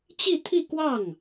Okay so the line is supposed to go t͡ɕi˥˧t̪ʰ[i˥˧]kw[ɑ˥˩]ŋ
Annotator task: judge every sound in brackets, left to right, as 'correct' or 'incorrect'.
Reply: correct, correct

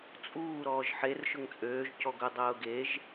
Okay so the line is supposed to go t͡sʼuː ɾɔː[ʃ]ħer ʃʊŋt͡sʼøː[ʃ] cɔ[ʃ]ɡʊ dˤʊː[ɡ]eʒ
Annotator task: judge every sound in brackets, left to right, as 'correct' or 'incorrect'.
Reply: incorrect: ʒ, incorrect: ʒ, incorrect: none, correct

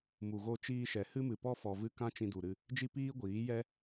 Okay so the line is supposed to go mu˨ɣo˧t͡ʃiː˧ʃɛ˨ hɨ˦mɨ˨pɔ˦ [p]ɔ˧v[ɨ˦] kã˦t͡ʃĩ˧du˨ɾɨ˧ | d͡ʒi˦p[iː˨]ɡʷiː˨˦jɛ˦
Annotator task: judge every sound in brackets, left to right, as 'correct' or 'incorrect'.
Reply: incorrect: f, correct, incorrect: iː˦

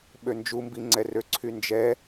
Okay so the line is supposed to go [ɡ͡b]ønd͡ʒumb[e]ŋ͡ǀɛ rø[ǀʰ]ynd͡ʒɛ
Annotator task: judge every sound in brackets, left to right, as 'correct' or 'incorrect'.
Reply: incorrect: ɓ, incorrect: i, correct

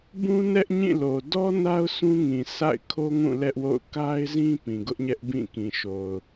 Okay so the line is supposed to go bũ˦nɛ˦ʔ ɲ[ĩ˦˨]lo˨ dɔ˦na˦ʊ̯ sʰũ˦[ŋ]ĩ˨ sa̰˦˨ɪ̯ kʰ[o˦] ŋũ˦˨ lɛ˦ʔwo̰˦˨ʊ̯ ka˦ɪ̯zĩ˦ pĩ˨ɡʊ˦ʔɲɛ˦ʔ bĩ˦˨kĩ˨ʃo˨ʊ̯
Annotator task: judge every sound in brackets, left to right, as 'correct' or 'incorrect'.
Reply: correct, correct, correct

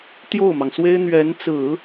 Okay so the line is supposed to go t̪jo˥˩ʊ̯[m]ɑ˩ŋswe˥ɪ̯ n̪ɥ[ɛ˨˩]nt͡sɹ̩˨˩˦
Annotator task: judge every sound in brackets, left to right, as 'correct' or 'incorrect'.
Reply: correct, incorrect: ɛ˧˥

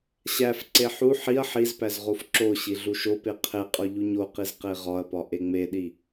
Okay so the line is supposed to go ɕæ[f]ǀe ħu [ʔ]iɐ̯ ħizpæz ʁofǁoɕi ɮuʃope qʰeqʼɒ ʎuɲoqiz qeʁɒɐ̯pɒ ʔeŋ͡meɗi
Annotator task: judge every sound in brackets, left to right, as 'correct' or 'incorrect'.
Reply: correct, incorrect: ħ

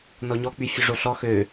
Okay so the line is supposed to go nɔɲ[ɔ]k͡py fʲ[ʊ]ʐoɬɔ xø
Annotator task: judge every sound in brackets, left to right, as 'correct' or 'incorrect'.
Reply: correct, correct

